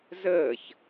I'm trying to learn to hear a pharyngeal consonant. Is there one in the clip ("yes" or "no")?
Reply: no